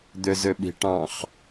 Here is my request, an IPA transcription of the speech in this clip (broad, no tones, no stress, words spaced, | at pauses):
d̪øzøɓi̤ʈɑ̃χ